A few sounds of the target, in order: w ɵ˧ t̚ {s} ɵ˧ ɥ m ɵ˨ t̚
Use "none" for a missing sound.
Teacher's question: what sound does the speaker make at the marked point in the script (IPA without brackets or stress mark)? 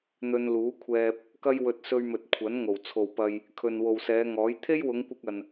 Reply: s